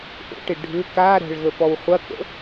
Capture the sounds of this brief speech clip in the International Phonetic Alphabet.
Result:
ʔ o̰ ʈ ɪ ɖʱ ʏ k a ɾ ɛ̤ ɭ ɣ ə p ɔ w χʷ ɐ k ə̰

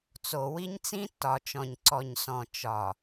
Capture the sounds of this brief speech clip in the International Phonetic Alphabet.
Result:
t͡s o˨ w i˦ ɲ t͡s ĩ˦ tː ɒ˨ t͡ʃ ɔ̃˨ ɲ ǀ ɔ˨ ɲ s ɔ̃˨ t͡ʃ ɒ˨

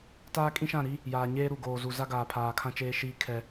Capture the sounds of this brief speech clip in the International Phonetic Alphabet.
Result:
t aː˦ kʼ ĩ˦ ʃ ã˦˨ ɾ i˦ | j aː˨ ɲ eː˦ ɾ u˨ ɡ oː˨ z u˨ z a˦ ɡ aː˨ pʰ aː˨ kʰ ã˦ t͡ʃ eː˦ ʃ iː˦ kʰ ɛ˦

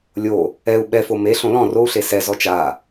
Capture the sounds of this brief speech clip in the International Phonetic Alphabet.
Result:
lʲ o | ɛ u̯ ɓ ɛ f o m e ɬ õ l ɔ̃ r o u̯ ɬ e s ɛ z ɔ t͡ʃ a

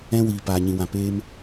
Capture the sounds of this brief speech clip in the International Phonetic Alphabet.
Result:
ɛ̃˧ w iː˨ p aː˨ ɲ ĩ˨ w ã˨ p eː˧ m

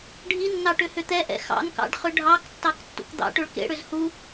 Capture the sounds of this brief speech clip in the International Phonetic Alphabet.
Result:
ɖʱ i nː ɑ ʈ ʏ h ʏ t̪ ɛ ʔ ɛ̰ x ɑ̰ n k ɑ̰ ɖ χ ʏ ɖʱ ɑ k tː ɑ k tː ṵ k d̪ ɑ̰ ʈ ʏ ɭ k ḛ ɽ ʏ z h u

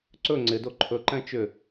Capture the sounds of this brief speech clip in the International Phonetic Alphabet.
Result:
ǀ ɵ ŋ͡ǀ ɪ d o ǃʰ ɵ ǃ ɛ̃ t͡ʃ ʏ

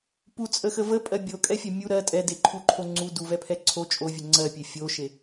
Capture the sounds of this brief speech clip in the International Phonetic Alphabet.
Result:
p u t͡sʼ ə x ə v ə pʼ ɜ bʲ o kʼ ɛ fʲ ɜ mʲ u ɾ ɜ tʼ ɛ d e ǃʰ u ǃʰ o ŋ͡ǀ u d u v ɛ pʰ ɛ ǀʰ o t͡ʃʼ o vʲ ə ŋ͡ǀ ɜ pʲ e fʲ o ʃ e

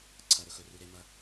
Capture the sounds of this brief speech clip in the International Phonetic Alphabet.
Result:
ǀʰ ɐ˩ ɾ ɵ˩ x ɵ˩ r u˩ ɾ e˩ m ɐ˩

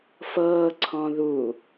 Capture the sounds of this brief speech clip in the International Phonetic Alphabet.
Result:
f ɤː ǀʰ ɔ̃ ð u

